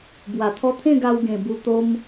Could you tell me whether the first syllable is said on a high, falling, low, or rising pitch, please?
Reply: low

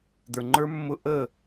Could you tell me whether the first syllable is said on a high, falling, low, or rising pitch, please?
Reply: low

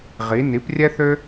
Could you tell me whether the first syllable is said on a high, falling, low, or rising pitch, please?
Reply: rising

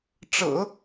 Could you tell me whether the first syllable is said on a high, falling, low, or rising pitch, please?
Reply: low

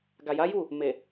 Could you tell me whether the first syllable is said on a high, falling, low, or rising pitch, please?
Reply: low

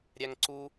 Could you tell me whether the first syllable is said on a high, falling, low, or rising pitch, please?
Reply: high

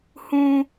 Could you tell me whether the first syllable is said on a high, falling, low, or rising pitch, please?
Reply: high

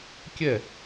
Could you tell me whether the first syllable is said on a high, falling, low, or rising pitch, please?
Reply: falling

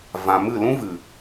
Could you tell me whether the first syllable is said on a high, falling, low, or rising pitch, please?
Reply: low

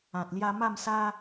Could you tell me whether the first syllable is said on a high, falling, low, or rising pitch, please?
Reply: low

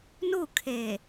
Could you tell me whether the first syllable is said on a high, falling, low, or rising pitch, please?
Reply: falling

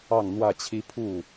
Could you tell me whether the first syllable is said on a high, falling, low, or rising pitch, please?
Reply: falling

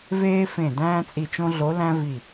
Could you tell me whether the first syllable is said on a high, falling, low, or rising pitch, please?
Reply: high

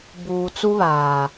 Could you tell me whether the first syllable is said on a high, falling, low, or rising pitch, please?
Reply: low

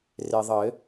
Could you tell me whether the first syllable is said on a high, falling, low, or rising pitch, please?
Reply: low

